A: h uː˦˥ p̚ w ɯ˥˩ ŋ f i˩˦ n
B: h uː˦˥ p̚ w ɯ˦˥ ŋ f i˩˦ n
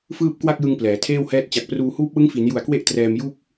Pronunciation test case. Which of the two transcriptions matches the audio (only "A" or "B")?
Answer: B